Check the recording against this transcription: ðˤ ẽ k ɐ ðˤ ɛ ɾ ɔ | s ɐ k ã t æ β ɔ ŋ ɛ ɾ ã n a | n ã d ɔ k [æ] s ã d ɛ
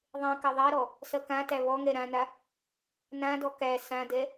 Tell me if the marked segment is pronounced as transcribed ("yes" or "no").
yes